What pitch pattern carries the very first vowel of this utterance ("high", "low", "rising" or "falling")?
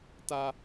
high